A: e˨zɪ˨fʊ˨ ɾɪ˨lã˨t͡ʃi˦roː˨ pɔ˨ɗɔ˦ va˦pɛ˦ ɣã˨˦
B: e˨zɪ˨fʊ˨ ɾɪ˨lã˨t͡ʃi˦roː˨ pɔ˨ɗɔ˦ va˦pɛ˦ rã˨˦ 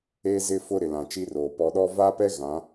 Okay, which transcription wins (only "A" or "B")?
A